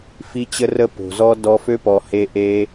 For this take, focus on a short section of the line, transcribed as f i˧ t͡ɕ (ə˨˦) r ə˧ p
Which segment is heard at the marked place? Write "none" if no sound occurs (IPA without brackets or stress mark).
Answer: ə˧